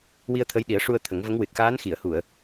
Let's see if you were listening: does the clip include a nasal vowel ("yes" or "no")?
no